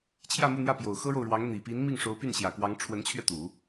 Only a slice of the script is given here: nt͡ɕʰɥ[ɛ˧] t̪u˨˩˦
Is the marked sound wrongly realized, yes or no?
no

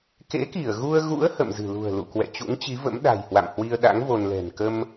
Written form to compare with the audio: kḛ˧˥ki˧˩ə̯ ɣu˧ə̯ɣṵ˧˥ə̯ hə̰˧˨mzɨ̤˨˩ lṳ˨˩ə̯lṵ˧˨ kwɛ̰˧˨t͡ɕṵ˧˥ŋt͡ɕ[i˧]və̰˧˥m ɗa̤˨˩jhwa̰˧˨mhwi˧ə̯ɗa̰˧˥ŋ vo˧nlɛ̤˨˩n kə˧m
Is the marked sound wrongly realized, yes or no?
yes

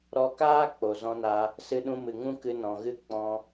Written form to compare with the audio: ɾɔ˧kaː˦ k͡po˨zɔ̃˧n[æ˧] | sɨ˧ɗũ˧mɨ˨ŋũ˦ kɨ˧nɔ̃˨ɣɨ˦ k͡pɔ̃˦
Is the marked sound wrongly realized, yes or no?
yes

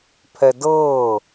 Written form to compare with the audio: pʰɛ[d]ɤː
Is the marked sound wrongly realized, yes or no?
no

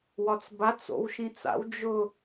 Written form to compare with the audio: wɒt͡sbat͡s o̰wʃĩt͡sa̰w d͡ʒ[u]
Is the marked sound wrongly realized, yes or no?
yes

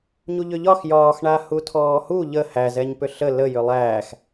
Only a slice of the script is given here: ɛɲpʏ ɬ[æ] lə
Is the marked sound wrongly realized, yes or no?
yes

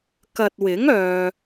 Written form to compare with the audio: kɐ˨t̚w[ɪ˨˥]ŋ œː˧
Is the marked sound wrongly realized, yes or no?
no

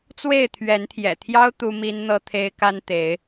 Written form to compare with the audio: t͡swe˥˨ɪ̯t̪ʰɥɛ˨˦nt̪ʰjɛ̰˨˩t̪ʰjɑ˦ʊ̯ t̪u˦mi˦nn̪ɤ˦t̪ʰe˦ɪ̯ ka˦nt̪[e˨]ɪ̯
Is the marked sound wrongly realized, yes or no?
yes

